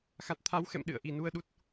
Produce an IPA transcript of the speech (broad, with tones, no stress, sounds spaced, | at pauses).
x a˨˩ t̚ t̪ʰ a˨˦ w x ɛ̰˧˨ m ɗ ɨ̰˧˨ ə̯ ʔ i˨˩ n u˧ ə̯ ɗ u˦˥ t̚